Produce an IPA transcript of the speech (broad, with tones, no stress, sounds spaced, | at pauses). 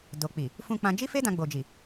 d o˨ k͡p i˨ | f ũ˧ k͡p ã˧ d͡ʒ i˦ f e˦ d ã˧ ɡ͡b o˨ d͡ʒ i˨